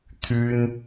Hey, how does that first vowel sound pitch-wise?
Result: high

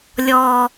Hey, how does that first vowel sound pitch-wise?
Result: low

